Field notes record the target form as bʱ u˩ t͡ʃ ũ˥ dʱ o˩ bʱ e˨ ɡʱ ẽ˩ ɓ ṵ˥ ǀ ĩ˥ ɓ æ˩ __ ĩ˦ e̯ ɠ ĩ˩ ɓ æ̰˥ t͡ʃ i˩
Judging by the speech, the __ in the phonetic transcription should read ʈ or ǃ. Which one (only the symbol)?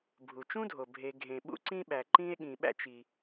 ǃ